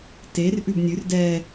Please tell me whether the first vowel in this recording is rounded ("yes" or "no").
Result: no